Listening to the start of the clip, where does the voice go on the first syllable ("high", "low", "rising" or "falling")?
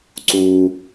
high